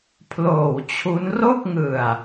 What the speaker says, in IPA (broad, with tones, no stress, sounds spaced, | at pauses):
pʰ l oː˨˩ w t͡ɕʰ u˦˥ n r o˥˩ k̚ ŋ ɯ˨˩ a̯